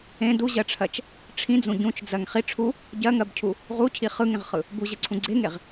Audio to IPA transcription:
ẽ d u ʑ ɜ ʈ͡ʂʰ ɜ t͡ʃ | ʈ͡ʂʰ ĩ d͡z ũ ɟ ũ t͡ʃ d͡z ɜ ŋ χ i ʈ͡ʂʰ u | ɟ ɜ ŋ ɜ b cʰ u | ʁ u cʰ i χ ɯ ŋ ẽ ʁ χ ɯ | b u ʑ ɯ ǀʰ ũ ɡ͡ǀ e ŋ e ʁ

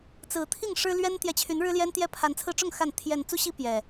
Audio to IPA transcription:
t͡s ɹ̩˨˦ t̪ʰ i˥˨ ŋ ʂ ɻ̩˦ l ɥ ɛ˦ n t̪ j ɛ˨ t͡ɕʰ y˨˦ n ɻ ɻ̩˦ l j ɛ˦ n t̪ j ɛ˦ pʰ a˨˦ n t͡sʰ ɹ̩˧ ʈ͡ʂ ʊ˥˨ ŋ x a˥˨ n t̪ʰ j ɛ˨˩ n t͡s u˦ ɕ i˦ p j ɛ˨˩

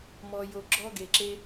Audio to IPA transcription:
m ɔ˧ j o˧ ɡ͡ǁ ɔ˥ ɡ e˧ ǁ e˥

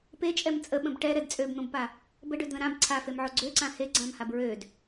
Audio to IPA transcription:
p e t͡ʃʼ ɛ m t͡sʼ ə ɓ ə̃ b ʈ ɛ ɾ ɛ d t͡sʼ ø b n̪ õ b p a | b ə ɖ ø d ð ə̃ ɾ ã b ǀʰ a f e m ʕ o ɡ͡ǀ ø ǀ ã h e ɡ͡ǀ ã m h a b ɹ ø d

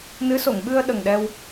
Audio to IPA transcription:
n ɨ˧˥ s o˨˩˨ ŋ ɓ ɨ˧ ə̯ ɗ ə˨˩ ŋ ɗ ɛ˧ w

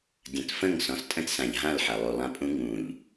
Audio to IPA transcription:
dʲ ɐ̃˨ t f ə̃˦˨ ŋ s ɔ̃˨ s tʼ ə̃˦ t s ã˨ ʎ ɦ ã˦˨ l ħ ɐ˨ lˠ u˨ lˠ ã˦ pʼ ũ˦ ŋ ũ˨ ʎ

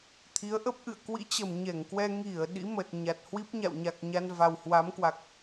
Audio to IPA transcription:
t̪ʰ i˨˦ ə̯ ʔ ə˦˥ p̚ ʔ ɨ̰˧˨ ə̯ k w ḭ˧˥ t͡ɕ ə˨˩ m ɲ ɛ˧˩ ŋ k w ɛ˧ ŋ i˧˩ ə̯ ɗ ḭ˧˥ m ə˨˩ t̚ ɲ a˨˩ t̚ h w i˦˥ p̚ ɲ a̰˧˨ w ɲ a˨˩ k̚ ɲ a˧ n v a˨˩ w h w a˨˦ m k w a˨˩ k̚

